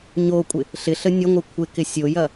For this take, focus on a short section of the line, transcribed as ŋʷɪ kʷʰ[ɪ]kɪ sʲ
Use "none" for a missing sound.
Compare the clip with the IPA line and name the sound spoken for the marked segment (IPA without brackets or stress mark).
ɪ